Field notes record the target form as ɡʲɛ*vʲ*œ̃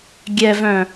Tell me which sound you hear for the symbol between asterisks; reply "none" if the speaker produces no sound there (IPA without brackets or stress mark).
v